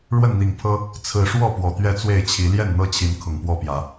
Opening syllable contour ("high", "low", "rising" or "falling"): falling